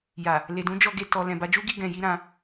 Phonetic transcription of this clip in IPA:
ja˨ | le˨dũ˨˦d͡ʒɔ˧ɡe˧ tɔ˨ lɛ̃˨ba˧d͡ʒu˦ɡi˧ ɡɛ̃˧ji˦ɾã˧

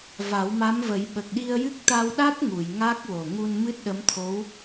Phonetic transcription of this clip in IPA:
va˨˩˦wma˧˥mvə˨˩˦j ɓə˨˩k̚ɗi˧ə̯jɨ˦˥k̚ t̪a˧wɗa˦˥t̚ŋu˨˩˨j ŋa˦˥k̚wo˨˩ ŋu˧nmɨ˦˥t̚ɗə˧˥mt̪ʰo˧˥w

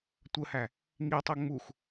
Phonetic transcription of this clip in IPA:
tʷəhæ | ŋitˤo ŋ͡mux

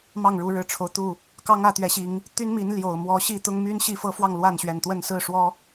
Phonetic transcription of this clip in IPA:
mɑ˥˨ŋɻu˨˦ɻɻ̩˨˩ʈ͡ʂʰo˦ʊ̯ t̪u˥˨ | kɑ˦ŋ ä˥˨t̪ɥɛ˨˦ɕi˨˦ŋ | t̪y˦nmi˨˦n ljo˨˩ʊ̯ mwɔ˨˦ɕi˥˨ t̪ʊ˦ŋmy˦n ɕi˥˨fɤ˦fwɑ˥˨ŋ lwa˥˨nɕɥɛ˨˩nt̪wə˥˨n sɹ̩˥˨ʂwɔ˦

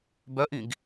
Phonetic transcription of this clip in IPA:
bœʔĩɡ

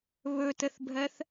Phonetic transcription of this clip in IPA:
βɵtəθbʱɜθ

